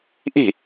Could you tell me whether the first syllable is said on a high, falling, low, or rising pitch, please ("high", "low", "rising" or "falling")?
falling